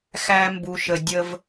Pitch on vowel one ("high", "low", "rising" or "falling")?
high